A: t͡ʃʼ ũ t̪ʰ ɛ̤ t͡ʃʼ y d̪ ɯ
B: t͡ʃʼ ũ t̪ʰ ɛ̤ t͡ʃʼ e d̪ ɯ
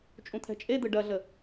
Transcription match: B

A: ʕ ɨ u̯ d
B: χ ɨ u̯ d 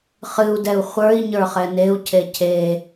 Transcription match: B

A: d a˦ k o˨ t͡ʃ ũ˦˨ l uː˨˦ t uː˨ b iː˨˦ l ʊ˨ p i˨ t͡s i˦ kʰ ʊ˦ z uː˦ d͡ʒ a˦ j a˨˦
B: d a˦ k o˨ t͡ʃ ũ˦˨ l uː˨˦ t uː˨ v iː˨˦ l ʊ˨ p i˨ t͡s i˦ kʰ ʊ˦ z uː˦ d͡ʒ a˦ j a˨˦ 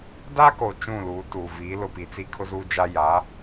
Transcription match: B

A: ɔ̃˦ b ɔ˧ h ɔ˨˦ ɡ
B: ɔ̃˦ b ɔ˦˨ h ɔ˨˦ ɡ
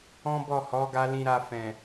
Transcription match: B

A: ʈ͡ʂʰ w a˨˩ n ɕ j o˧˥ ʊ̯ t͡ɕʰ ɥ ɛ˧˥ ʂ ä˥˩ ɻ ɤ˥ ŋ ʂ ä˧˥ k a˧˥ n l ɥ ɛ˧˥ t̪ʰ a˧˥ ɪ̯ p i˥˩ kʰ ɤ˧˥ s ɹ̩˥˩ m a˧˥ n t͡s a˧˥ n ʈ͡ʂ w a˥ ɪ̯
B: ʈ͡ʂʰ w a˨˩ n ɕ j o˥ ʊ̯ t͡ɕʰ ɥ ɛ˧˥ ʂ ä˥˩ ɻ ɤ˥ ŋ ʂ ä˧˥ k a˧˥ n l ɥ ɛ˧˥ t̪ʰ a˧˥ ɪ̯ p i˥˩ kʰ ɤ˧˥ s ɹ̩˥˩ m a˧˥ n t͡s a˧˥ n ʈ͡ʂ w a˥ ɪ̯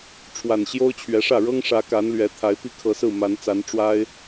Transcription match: B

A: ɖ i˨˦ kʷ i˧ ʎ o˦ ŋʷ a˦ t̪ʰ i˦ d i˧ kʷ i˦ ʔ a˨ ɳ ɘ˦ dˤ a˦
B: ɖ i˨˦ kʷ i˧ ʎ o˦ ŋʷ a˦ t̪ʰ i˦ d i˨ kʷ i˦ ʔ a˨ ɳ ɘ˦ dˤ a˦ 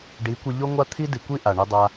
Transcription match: B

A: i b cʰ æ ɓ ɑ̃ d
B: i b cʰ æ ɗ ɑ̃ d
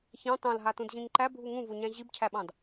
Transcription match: A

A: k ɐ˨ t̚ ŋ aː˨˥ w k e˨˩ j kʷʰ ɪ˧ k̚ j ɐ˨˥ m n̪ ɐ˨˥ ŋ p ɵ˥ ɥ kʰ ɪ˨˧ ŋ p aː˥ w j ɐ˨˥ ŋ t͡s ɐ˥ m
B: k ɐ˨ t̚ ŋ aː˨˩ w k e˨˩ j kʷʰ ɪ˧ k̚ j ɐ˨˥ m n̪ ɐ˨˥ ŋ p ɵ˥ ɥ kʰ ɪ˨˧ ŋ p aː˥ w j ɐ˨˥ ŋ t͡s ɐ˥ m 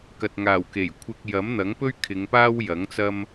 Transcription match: B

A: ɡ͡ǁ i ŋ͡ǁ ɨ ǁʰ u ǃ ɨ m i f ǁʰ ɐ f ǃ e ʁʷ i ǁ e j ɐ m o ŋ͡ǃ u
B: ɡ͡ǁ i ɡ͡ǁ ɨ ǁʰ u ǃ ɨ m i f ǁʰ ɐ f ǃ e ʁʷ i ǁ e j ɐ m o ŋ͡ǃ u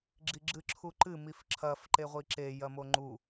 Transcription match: B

